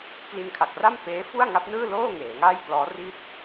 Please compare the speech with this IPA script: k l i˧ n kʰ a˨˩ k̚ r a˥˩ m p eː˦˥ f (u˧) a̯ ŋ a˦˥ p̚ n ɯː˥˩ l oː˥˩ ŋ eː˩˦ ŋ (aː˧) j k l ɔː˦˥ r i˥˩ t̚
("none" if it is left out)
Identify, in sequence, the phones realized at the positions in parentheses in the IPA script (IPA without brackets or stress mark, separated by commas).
u˥˩, aː˥˩